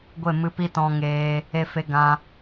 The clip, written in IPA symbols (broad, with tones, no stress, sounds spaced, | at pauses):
ɡʷ e˦˨ m ɨ˧ p i˦ t ɔ̃˧ ŋ eː˧ | e˧ f e˧ ɡ ã˧